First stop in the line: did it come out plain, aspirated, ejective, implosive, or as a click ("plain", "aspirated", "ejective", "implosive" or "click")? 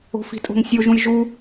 ejective